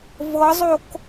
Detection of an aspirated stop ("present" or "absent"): absent